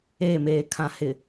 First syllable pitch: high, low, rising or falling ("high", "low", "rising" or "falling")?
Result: falling